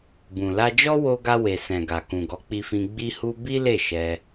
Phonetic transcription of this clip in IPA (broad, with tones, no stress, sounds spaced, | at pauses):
b ũ˨ l a˧ d͡ʒ ɔ˦ w o˧ ɡ a˧ w e˨ s ɛ̃˨ ɡ a˨ k ũ˨ ɡ ɔ˨˦ k͡p i˧ f ĩ˧ ɡ͡b i˦ h u˦ b i˦ l e˦˨ ʃ ɛ˧